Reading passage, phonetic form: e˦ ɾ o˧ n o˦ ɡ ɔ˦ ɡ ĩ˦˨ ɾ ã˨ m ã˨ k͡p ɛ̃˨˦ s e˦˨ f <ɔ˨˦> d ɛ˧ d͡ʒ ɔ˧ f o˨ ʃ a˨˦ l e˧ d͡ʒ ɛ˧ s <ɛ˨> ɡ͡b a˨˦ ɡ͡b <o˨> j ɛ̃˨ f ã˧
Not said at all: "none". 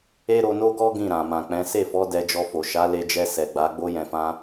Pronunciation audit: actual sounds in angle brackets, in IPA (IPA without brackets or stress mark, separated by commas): ɔ˨˦, ɛ˨, o˧